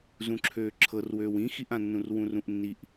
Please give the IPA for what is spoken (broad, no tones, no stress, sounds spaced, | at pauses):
z ũ ǁʰ øː ǁʰ ɤ r w øː w ĩ x i ʔ ã nː ũ r w ũ r ũ ʔ nː i ʔ